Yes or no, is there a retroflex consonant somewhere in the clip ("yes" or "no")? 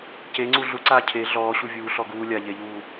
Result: no